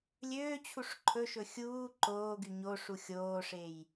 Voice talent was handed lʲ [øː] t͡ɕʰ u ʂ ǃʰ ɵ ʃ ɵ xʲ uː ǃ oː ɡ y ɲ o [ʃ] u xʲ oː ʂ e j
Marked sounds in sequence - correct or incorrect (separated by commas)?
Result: correct, incorrect